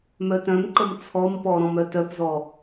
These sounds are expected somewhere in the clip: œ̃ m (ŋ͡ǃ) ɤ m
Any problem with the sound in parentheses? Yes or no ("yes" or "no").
yes